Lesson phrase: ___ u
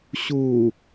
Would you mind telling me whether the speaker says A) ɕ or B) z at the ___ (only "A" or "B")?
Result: A